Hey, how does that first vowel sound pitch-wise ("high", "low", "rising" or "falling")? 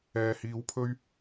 low